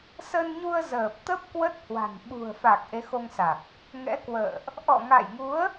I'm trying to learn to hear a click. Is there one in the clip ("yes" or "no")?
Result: no